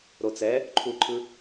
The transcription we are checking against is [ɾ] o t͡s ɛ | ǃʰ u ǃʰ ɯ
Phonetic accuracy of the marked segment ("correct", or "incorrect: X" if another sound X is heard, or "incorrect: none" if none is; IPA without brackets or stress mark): correct